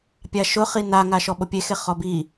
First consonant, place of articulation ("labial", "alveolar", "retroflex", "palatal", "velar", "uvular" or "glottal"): labial